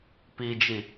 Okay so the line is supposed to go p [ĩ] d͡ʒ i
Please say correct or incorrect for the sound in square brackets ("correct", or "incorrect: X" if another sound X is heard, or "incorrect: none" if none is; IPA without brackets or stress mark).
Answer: incorrect: i